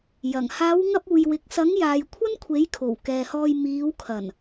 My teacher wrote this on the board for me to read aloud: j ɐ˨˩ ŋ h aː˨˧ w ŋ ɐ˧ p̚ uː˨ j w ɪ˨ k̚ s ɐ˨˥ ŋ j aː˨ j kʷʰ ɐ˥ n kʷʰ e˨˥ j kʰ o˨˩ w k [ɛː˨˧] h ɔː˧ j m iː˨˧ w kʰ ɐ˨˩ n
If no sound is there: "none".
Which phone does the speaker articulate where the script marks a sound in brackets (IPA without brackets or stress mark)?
ɛː˨